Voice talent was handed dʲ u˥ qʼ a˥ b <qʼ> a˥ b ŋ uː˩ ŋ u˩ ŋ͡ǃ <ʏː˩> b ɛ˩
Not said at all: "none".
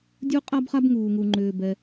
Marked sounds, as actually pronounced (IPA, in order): χ, ʏː˩

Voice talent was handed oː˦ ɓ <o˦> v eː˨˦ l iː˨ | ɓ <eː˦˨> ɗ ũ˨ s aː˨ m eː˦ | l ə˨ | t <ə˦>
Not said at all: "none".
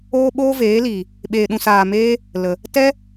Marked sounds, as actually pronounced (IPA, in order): oː˦, eː˨, ɛ˦

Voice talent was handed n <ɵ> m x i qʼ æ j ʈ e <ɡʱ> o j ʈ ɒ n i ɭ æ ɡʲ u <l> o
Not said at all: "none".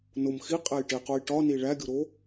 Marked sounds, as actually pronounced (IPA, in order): o, q, ɾ

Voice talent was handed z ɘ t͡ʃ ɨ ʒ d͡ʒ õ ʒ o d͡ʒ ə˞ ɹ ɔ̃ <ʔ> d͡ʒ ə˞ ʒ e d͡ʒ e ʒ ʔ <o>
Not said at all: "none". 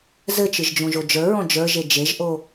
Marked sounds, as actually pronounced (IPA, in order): none, o

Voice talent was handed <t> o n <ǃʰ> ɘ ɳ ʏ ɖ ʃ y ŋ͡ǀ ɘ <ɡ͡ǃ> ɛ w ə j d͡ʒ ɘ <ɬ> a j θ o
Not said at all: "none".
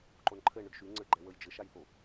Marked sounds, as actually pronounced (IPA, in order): ǃ, ǃʰ, ɡ͡ǃ, ʃ

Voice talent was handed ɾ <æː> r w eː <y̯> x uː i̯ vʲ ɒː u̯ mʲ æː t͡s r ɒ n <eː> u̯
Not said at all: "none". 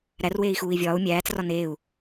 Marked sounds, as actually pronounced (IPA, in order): æ, i̯, eː

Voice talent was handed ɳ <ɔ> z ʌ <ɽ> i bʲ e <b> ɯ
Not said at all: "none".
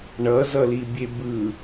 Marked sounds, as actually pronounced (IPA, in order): ʌ, l, b

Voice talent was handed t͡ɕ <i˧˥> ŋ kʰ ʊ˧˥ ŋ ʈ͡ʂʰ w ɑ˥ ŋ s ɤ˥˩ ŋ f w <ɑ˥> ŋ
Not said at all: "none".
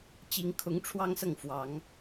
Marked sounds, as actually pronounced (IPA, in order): i˧˥, ɑ˨˩˦

